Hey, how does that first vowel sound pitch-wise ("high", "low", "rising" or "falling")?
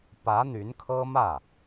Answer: rising